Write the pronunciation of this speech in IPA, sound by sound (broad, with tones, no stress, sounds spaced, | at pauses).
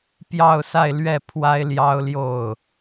p j ɑ˥˧ ʊ̯ s a˥˧ ɪ̯ l ɥ ɛ˥˩ pʰ w a˥ ɪ̯ l j ɑ˥ ʊ̯ l j o˥˩ ʊ̯